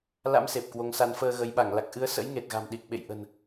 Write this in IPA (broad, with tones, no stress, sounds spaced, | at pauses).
l a̰˧˥ m s e˨˩ p̚ k w o˨˦ ŋ s a˨˦ n f əː˧ ɣ ə˨˦ j ɓ a˧˩ ŋ l a˨˩ k̚ ʔ ɨ˨˦ ə̯ s ə̰˧˥ j ŋ e˨˩ t̚ ɣ a̤˨˩ m ɗ i˨˩ k̚ ɓ ḛ˧˨ j ʔ ə̤˨˩ n